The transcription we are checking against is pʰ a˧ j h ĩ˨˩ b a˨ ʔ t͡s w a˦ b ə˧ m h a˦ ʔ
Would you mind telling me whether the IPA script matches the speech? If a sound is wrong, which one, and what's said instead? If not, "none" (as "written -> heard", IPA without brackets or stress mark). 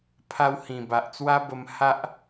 j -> w